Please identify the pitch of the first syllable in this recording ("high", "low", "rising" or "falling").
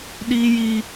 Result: high